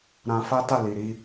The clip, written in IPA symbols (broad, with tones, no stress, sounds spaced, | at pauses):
ɾ ã˧ f a˦ t a˦˨ l i˨ ɾ i˧